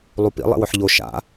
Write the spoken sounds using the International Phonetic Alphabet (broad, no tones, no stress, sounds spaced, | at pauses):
lˠ u p ḭ lˠ ḛ w ɵ ħ ʎ o ʃ a̰